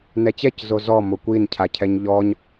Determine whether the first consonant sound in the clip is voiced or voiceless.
voiced